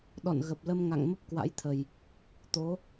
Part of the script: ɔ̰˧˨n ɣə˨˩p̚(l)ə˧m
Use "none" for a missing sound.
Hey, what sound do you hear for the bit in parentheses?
l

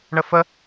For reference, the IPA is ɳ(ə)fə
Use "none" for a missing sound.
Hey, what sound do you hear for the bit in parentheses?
ə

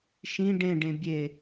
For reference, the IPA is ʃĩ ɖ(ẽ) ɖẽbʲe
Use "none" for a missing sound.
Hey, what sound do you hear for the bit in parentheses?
ẽ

